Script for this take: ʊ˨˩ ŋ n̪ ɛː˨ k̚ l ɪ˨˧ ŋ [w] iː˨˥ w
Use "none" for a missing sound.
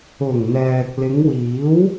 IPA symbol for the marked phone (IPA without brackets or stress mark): w